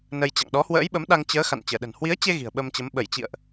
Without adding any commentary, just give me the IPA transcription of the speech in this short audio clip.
nə˧jt͡ɕa̰˧˨ŋ ɗɔ˨˦hwə̰ː˧˥jɓə˨˦m ɗa˧ŋt͡ɕəː˨˦ xa̰˧˨nt͡ɕəː˧˩ɗə̤˨˩n hwi˨˦ə̯t͡ɕe˧ ɣi̤˨˩ə̯ɓə˧mt͡ɕə˨˦m ɓə˧˩jt͡ɕḭ˧˨ə̯ʔ

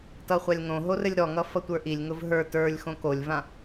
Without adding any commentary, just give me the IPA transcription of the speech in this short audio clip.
tʌχʷalʲŋõɦo rɘlʲɾɔŋʌ fʌtʷə˞ʔilʲŋʊv ɦə˞ tə˞lʲ xõkolʲvã

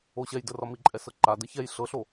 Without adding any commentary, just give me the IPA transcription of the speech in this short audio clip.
oɕɛj dərɒmi ǃʼɛsɤǃa dəçɛj ɬɤɬo

